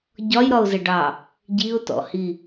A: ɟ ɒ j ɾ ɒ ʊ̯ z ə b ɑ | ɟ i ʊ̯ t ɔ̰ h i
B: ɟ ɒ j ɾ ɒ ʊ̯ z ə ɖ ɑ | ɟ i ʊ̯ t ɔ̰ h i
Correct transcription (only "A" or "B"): B